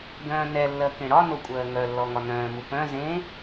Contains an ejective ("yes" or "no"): yes